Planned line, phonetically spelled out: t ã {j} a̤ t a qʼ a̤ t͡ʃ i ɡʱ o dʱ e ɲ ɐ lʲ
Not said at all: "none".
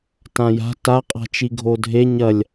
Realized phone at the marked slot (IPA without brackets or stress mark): j